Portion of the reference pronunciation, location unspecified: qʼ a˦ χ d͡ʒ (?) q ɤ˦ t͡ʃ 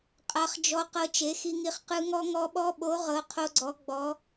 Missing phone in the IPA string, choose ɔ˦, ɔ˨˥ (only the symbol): ɔ˦